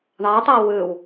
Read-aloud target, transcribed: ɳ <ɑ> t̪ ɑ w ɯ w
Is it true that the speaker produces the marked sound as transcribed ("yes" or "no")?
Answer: yes